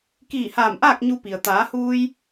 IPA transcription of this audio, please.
k iː˧˩ h aː˧˩ m ʔ aː˥˨ k̚ ɲ u˧ p i˩ ə̯ t̪ aː˩˧ h uː˧ j

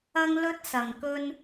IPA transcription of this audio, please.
ɐ˥ ŋ l ɵ˥ t̚ s ɐ˨˩ ŋ k ɵ˥ n

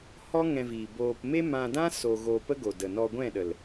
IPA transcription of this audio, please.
h ɔ˦ ŋ ɛ̃˧ v iː˨ b oː˧ p m e˦ m ã˧ d ã˦ s o˧ ɣ o˧ p ə˦ ɡ o˨ d ə˨ n ɔ˧ ɡʷ ɛ̃˦˨ ɗ ə˨ l

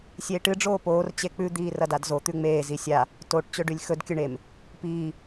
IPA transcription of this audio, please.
sʲ eː ʈ ɨ ɖ͡ʐ oː p oː r t͡ɕ e k͡p ʉ d̪ iː r ɐ d a d z o t̪ ʉ ŋ͡m eː z i sʲ a | t o ʈ t͡ɕ ɵ ɖ ʉ lʲ x ɵ d kʲ ɵ ɳ e m | p iː

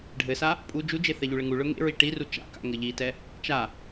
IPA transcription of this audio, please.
ɖʱ ɘ s a | pʼ u d͡ʒ u d͡ʒ e θ ɛ ʎ u ɭ ɘ ŋ u ɭ ɵ ŋ ḛ ɹ i ʈ i r u t͡ʃ a̰ k a̰ ŋ ɘ ʎ i t ɛ | t͡ʃ a

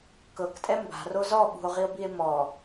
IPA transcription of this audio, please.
k ɤ k tʼ ɛ m b a̤ r o z ɔ ɓ ṳ o̯ ʁ i o̯ b i e̯ m ɔ

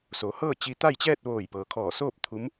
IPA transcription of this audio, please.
s o˩˧ h ɤː˥˨ t͡ɕ i˧ t̪ a˥˨ j t͡ɕ ɛː˥˨ t̚ ʋ oː˧˩ j p ɤː˩ kʰ ɔː˧˩ s oː˥˨ p̚ t̪ʰ u˧˥ m

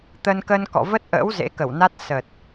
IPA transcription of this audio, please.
t̪ ə˧ n k ə˧ n k ɔ̰˧˨ v ə˦˥ t̚ ʔ ə̰ː˧˥ w z ḛ˧˥ k ə˧˩ w n a˦˥ t̚ s ə˨˩ t̚

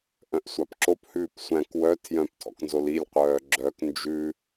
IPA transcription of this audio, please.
ʔ œ̃ ʔ sʷ ɑ p ǁ o p h ʉː p sʷ æ̃ k w œ tʰ j œ̃ p tʰ ɔ̰ k n z o l i lʲ qʷ œː ɡ͡ǁ œ k n d͡ʒ ʉ

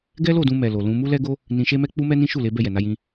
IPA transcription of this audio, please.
ɡ ɛ˦ l o˦˨ d ũ˧ m ɛ˨ l o˨ l ũ˧ m u˦ l ɛ˦ ɡ o˦ | n ĩ˧ ʃ e˦ m ɛ˦ k͡p u˦ m ɛ˦ n ĩ˦ ʃ u˦˨ l e˨˦ b ɛ˦˨ j ɛ˨ n a˧ j ĩ˧

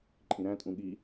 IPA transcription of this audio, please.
ǃʼ ĩ ɾ æ̃ tʼ ũ ɠ i

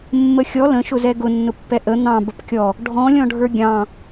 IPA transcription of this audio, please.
mː ə xʲ ɔ l ə̃ ʃ ʊ z ɛ ɡ ʊ nː ʊ pː ɛ ʔ ə n̪ ɑ̃ b ə p kʲ ɔ | ɖʱ ɔ̃ lʲ ɔ̃ ɖʱ ə˞ ɡʲ ɑ̃

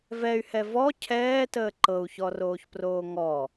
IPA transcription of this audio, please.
v ɛ y̯ h ɛ v ɔ cʰ ɛː t əː ǃ ɤ u̯ ç ɔ r oː ç p r oː ŋ ɔ

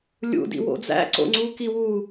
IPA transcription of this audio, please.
lʲ ṵ d ḭ w o̰ d͡z æ̰ ǀ o̰ ŋ͡ǀ u k i w u

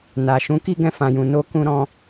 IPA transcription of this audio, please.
n a˨ ʃ ũ˨˦ k i˧ ɡ ɛ̃˧ f ã˨ j ũ˨ n o˧ k ũ˧ ɾ ɔ̃˧

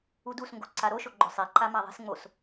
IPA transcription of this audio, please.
u d u s ŋ ɡ o ǀ a ɾ o ʃ o ɡ͡ǃ ʊ sˤ e ǃ a m a ðˤ i̤ s ŋ͡m o s

